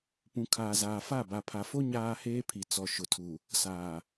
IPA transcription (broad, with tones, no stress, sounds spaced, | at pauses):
p ũ˨ kʰ aː˨ z aː˨ f a˦˨ b a˨ pʰ a˨ f o˦ ɲ aː˦ h eː˦ pʰ i˨ t͡s ɔ˨ ʃ ʊ˨ tʰ u˨ | s aː˨